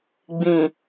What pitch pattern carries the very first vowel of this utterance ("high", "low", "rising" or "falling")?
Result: low